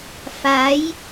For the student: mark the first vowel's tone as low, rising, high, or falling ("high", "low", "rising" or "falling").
rising